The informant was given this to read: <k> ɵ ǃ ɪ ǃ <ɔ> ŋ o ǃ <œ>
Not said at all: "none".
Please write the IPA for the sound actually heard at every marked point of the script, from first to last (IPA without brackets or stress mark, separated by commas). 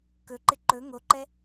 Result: k, ɵ, ɛ